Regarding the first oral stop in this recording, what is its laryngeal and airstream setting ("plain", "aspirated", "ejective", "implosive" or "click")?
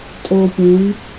ejective